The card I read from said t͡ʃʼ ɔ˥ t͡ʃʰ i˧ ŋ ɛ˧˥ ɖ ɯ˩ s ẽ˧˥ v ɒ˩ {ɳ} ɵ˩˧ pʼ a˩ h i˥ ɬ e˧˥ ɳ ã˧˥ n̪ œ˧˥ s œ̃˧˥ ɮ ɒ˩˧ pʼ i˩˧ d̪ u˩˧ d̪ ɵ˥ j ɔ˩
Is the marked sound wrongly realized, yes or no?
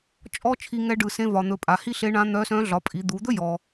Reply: yes